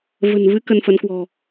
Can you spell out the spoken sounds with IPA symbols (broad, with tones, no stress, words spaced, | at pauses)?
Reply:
və̤˨˩n vɨ˨˦ kə˧nfə˨˦nkwɔ̤˨˩